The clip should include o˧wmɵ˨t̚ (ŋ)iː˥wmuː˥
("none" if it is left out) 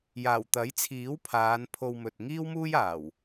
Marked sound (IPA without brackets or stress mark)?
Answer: ŋ